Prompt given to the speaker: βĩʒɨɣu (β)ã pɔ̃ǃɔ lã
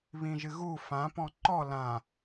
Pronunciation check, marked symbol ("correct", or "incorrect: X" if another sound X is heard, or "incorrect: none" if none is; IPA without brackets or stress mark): incorrect: f